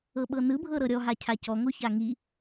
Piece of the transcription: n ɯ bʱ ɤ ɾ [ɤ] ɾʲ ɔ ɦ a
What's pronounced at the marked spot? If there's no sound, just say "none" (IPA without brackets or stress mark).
ɤ